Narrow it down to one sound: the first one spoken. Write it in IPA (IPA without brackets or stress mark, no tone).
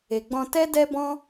e